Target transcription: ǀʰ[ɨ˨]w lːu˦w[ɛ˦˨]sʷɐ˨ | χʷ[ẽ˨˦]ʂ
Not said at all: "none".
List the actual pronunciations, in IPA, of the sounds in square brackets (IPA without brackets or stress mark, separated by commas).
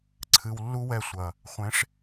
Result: ɨ˨, ɛ˦˨, ẽ˨˦